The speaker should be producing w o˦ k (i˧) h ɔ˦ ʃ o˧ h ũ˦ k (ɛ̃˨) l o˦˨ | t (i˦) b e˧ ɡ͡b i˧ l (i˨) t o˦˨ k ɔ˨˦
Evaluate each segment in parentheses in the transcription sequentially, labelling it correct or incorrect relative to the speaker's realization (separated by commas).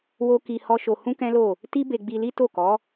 correct, incorrect, correct, incorrect